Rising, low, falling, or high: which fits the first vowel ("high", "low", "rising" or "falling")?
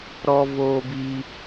high